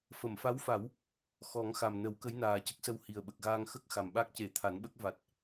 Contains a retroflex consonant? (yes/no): no